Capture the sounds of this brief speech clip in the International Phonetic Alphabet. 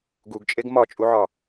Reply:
ɡ u ɡ t͡ʃʼ e ɡ m ɒ t͡ʃʼ u ʕ ɒ

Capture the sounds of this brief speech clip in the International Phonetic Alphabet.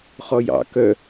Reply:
χ ɔ j ɑ̰ k œ

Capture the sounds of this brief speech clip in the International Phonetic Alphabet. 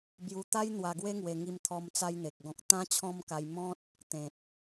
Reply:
b j u˧ t̪ a˦ j n̪ w a˧ ɡ w e˦ ŋ w e˧ ŋ i˧ m t̪ʰ ɔ˧ m t͡s a˧ j n̪ e˨ k̚ ɡ ɔ̃˨ k̚ t̪ ã˦ t͡ɕʰ ɔ̃˦ m k a˧ j m ɔ̃˦ t̚ | t̪ ẽ˨ t̚

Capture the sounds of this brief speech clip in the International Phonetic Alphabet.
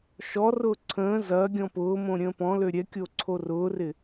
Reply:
ʃ ɔ r ʊː ǀʰ ə̃ː z ɐ ɡʲ ɔ̃ p ʊː m õ ɾʲ ə̃ː p ɔ̃ l ø ɾʲ ɛ kʲ o ǀʰ o r ʊː r ɪ

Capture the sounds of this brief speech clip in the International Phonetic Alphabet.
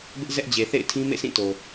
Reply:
b ɪ˦ ʔ z ɛ˦ ʔ d͡ʑ e˨ θ ḛ˦˨ ɪ̯ tʰ ĩ˦ m ḛ˦˨ sʰ ĩ˦˨ t o˨

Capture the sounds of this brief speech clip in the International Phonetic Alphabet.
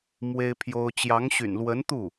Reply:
m w e˥ ɪ̯ pʰ j o˥ ʊ̯ t͡ɕ j ɑ˧˥ ŋ ɕ y̰˨˩ n l w ə˧˥ n t̪ u˥˩

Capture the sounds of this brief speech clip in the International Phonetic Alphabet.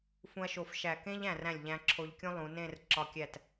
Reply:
f ũ˧ ɐ̯ ʃ o˧˩ f ʃ æ˧˩ k ẽ˥ ʎ æ̃˧˩ r æ̃˧˩ lʲ ʎ æ̃˧ ǁʰ o˧ ʎ kʲ ũ˥ lˠ ũ˩˧ n ẽ˥˧ r ǁ ɒ˧ kʲ æ˧˩ t

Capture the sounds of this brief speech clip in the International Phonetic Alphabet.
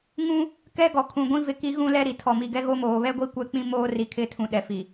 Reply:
ŋ ũ˦ | k ɛ˦ ɡ ɔ˨ kʰ ũ˨ ɡʷ ĩ˦ v ɪ˦ k i˦ ɣ ũ˦ l ɛ˦ ɾ i˨ tʰ ɔ˨ m i˨ ɡ ɛ˦ ɣ o˦ m oː˨ β ɛ˦ ɡʷ i˦ kʷ ɛ˦ k͡p ĩ˦ m oː˦ r i˨ kʰ ɪ˦ tʰ ũ˨ ɗ ɛ˨ f i˨

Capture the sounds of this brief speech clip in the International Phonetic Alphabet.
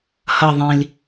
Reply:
h ʌ ðˤ ĩ l

